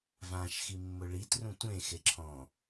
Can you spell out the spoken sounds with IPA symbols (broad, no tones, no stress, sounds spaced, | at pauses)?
v ã ʃ x i mː ʊ ɭ i t r ũ tʷ ẽ x e ǁʰ ɔ̃